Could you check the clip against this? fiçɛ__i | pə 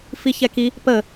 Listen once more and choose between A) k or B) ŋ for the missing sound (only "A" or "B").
A